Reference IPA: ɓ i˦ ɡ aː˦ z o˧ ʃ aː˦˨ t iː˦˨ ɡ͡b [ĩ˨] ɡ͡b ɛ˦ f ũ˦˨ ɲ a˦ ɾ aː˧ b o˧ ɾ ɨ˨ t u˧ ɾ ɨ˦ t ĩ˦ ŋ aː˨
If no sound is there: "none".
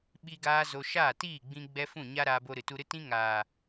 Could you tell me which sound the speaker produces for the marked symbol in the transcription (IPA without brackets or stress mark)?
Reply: ĩ˧